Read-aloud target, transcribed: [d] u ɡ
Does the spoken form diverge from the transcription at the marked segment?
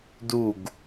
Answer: no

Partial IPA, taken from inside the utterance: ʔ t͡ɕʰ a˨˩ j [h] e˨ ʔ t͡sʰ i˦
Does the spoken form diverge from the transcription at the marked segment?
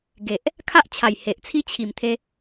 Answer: no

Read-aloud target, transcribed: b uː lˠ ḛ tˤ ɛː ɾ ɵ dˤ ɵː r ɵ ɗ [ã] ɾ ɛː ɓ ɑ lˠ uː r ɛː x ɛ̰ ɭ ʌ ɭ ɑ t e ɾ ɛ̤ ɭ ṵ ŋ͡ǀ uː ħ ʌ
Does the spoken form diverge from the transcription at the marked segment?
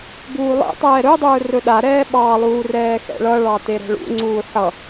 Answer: yes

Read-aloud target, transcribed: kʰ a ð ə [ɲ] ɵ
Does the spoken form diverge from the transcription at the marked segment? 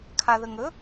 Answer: yes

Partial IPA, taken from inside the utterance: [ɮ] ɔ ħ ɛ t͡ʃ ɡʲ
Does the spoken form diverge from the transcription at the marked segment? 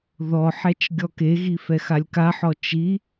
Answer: yes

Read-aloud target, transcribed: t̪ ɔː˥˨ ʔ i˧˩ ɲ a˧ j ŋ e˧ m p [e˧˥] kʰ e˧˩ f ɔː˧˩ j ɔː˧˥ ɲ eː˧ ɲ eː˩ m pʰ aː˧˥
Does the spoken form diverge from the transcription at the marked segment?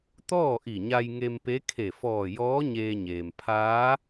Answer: no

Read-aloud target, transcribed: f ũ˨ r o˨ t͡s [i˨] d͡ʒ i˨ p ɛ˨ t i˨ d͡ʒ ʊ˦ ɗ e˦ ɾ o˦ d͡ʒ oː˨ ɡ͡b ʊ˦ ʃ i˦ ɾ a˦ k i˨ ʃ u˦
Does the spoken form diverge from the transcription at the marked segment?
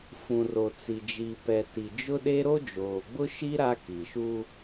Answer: no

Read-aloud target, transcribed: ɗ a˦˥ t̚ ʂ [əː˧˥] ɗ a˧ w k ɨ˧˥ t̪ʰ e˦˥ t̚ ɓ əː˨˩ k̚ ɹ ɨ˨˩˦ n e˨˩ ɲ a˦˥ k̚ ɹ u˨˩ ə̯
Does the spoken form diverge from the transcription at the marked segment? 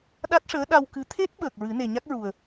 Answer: no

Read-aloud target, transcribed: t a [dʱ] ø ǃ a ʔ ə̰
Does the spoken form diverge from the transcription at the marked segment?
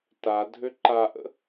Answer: no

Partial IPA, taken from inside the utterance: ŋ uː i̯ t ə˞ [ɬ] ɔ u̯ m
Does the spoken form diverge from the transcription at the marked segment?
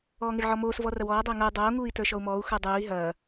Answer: yes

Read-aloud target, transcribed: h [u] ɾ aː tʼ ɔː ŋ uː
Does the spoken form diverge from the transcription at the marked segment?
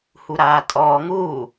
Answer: no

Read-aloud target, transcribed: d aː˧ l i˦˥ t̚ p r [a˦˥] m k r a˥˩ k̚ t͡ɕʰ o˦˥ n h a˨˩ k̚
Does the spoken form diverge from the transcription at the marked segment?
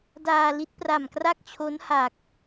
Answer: yes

